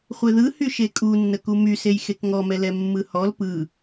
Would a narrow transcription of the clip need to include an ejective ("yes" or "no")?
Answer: yes